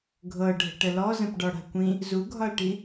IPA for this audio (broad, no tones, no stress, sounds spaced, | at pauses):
ɡʱ ɤ ɖʱ ə̤ ʈ ə l ɔ z ə̃ p ɖ ɒ ɽ a̤ kʷ ĩ | z u ɡʱ ɒ l ʈ i